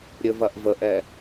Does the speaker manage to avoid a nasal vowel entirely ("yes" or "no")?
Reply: yes